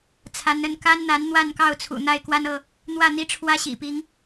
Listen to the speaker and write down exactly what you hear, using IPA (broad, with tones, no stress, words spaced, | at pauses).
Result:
t͡sʰa˨˦nə˥˨n ka˦n n̪a˨˦n n̪wa˥˨nkɑ˥˨ʊ̯t͡sʰṵ˨˩ n̪a˥˨ɪ̯kwa˦nɤ˥˨ | n̪wä˥˨n̪i˦ ʈ͡ʂʰwä˦ɕḭ˨˩pi˨˦ŋ